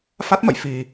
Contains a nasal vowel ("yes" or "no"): no